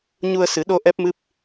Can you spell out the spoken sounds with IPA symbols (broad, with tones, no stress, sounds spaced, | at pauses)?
ɲ u˧ ə̯ s ɨ˨˩˦ ɗ o˧ ʔ ɛ˦˥ p̚ m ɨ˦˥ p̚